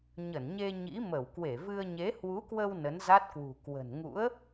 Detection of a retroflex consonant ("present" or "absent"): absent